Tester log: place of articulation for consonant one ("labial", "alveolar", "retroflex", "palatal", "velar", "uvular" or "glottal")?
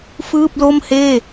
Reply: labial